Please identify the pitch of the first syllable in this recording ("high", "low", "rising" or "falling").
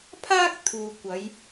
high